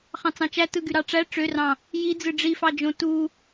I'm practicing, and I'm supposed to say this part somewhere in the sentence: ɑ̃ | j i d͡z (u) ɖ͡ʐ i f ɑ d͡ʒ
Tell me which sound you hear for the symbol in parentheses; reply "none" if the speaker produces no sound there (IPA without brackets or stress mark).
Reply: ɯ